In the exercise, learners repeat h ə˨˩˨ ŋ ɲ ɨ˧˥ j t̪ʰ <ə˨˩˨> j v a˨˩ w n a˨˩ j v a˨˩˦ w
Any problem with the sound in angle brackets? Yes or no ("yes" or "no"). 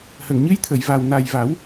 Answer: no